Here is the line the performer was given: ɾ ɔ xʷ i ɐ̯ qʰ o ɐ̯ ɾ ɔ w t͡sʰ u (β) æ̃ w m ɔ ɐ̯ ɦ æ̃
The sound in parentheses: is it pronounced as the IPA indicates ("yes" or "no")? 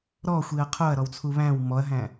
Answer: yes